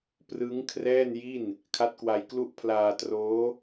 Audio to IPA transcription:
p r ɯ˦˥ ŋ kʰ r ɛː˥˩ n j i˥˩ n | kʰ a˦˥ t̚ k w a˧ j k l u˥˩ ʔ pʰ l aː˧ t r oː˦˥

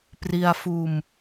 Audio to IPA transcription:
p r i˧ a̯ f uː˧ m

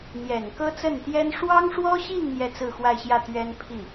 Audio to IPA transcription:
n̪ j ɛ˨˩ n k ɤ˥ t͡s ə˥˩ n t̪ j ɛ˥ n ʂ w ɑ˥ ŋ ʂ w ɔ˥ ɕ i˥˧ ŋ n̪ j ɛ˥˧ t͡s ɹ̩˥˧ x w a˥˧ ɪ̯ ɕ j ä˥˩ t̪ ɥ ɛ˥ n pʰ i˥˩

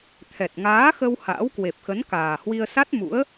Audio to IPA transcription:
t̪ʰ ɛ˨˩ t̚ ŋ aː˨˦ x ə˧ w h a̰ː˧˥ w k w e˨˩ p̚ x ə˨˦ n k aː˨˩ h w i˧ ə̯ s a˦˥ t̚ m ṵ˧˥ ə̯

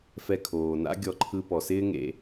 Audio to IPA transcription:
f ɛ˧ kʰ oː˨ n a̰˦ ɡʲ ɔ˧ ǃʰ ɯ˧ p ɔ˨ s ɪː˦ ŋ ḛ˧

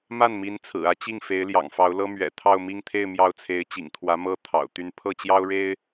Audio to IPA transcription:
m a˥˩ n m i˧˥ n t͡sʰ ɹ̩˨˩ ä˥ t͡ɕ i˥˩ ŋ f e˧˥ ɪ̯ l j ɑ̰˨˩ ŋ f ɑ˧˥ ʊ̯ l ɤ˥ m ɥ ɛ̰˨˩ t̪ʰ ɑ˥˧ ʊ̯ m i˥˧ ŋ t̪ʰ e˥˧ ɪ̯ m j ɑ˥˩ ʊ̯ t͡sʰ e˧˥ ɪ̯ t͡ɕ ḭ˨˩ ŋ t̪ʰ w ä˧˥ m ɤ˥ t̪ʰ ɑ̰˨˩ ʊ̯ t̪ y˥˧ n pʰ ɤ˥˩ t͡ɕ j ɑ˥ ʊ̯ ɻ e˥ ɪ̯

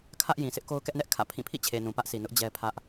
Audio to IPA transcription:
kʰ ä˦ ʔ j ĩ˨ sʰ ɪ˦ ʔ k o˦ ʊ̯ k ɛ˦ ʔ n ɛ˦ ʔ kʰ ä̰˦˨ pʰ ĩ˦˨ pʰ ḭ˦˨ t͡ɕʰ e˨ n ũ˨ p ä˦ ʔ sʰ i˨ n ʊ˦ ʔ d͡ʑ ɛ˦ pʰ ä˦ ʔ

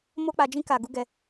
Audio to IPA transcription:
m o˧ k͡p a˨ d͡ʒ ĩ˧ k a˨ ɡ u˨˦ ɡ ɛ˧

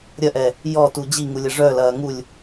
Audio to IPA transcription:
ɾʲ ɐ ʔ ɛ | j ɔ t u d͡ʑ i ŋ u lʲ ɐ ʐ œ l ɐː ŋ u lʲ

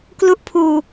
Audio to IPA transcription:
k l u˦˥ ʔ pʰ uː˧

